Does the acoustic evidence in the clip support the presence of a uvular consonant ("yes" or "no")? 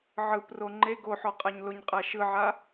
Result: yes